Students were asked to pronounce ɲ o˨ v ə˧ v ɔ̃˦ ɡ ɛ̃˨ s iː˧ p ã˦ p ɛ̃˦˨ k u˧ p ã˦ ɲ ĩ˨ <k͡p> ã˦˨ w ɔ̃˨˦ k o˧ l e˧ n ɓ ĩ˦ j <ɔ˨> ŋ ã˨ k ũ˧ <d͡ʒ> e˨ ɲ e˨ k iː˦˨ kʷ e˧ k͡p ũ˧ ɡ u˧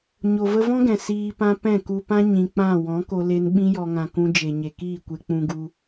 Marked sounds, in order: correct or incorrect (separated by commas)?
correct, incorrect, correct